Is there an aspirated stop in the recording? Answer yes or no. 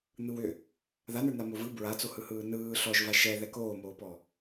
no